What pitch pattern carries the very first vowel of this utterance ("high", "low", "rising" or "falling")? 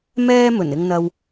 high